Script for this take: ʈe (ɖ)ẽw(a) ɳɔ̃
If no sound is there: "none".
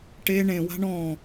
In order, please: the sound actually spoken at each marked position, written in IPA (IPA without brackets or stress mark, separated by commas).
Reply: ɳ, a̤